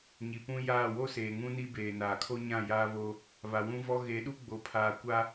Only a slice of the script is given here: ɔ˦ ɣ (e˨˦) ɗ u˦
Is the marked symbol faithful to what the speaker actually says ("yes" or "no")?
yes